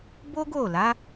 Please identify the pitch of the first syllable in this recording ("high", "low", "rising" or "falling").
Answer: high